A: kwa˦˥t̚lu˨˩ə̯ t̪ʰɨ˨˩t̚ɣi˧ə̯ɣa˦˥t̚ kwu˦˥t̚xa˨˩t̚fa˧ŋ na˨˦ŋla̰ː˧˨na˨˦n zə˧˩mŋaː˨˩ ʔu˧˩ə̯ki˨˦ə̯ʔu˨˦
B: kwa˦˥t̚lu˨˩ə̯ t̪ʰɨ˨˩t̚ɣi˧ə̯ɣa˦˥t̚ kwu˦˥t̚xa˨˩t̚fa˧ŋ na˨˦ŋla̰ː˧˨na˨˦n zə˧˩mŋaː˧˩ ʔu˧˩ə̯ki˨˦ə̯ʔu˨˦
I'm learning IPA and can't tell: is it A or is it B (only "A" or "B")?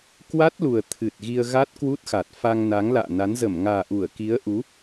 A